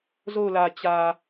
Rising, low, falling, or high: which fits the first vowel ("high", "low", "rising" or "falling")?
falling